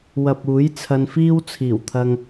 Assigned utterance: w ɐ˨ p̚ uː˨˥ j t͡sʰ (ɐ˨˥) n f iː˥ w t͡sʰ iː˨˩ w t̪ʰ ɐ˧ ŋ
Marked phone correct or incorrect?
incorrect